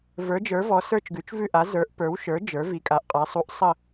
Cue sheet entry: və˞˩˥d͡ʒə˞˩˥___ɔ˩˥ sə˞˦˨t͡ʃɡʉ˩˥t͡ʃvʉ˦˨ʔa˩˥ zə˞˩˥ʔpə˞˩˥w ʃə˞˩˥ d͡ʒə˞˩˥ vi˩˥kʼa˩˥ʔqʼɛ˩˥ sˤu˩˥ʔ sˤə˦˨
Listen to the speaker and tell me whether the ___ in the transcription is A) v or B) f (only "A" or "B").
A